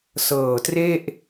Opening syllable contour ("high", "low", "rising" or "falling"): low